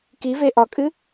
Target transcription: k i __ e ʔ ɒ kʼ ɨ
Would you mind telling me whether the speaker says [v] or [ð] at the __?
v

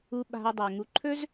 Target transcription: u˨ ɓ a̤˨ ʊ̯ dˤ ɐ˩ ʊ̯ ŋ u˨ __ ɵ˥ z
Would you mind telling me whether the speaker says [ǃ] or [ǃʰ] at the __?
ǃʰ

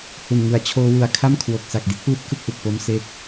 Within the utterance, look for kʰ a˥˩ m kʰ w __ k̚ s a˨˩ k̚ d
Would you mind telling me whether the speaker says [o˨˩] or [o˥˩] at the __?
o˨˩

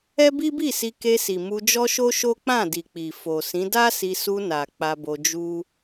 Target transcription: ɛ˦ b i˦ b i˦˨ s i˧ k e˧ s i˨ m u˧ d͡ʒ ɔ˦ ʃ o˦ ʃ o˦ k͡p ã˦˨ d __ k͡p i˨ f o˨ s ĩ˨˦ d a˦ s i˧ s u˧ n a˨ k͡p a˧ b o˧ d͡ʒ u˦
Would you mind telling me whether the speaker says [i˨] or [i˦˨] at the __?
i˨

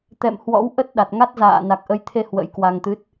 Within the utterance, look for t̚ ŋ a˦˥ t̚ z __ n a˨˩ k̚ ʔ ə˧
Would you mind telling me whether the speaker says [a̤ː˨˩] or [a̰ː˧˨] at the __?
a̰ː˧˨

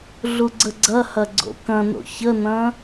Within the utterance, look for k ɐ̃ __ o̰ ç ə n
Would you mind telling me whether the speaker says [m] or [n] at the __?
n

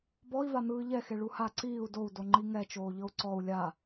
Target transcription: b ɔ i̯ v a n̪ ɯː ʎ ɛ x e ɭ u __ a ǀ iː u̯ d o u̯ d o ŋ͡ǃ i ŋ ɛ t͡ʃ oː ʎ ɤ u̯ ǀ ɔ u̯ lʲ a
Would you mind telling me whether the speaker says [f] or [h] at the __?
h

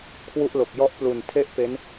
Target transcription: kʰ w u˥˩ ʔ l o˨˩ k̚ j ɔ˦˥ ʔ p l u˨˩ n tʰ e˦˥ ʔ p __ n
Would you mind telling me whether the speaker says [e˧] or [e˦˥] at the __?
e˦˥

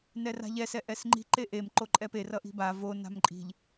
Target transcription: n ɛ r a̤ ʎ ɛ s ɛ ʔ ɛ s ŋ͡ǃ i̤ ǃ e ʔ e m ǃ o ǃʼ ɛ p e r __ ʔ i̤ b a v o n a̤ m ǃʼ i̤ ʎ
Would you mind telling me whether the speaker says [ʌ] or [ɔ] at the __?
ʌ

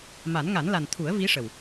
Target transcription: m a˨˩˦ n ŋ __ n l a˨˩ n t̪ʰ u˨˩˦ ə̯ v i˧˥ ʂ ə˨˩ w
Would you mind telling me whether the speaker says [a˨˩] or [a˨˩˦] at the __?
a˨˩˦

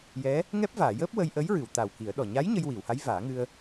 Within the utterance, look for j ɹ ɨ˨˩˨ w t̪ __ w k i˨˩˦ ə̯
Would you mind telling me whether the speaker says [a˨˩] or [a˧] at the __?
a˨˩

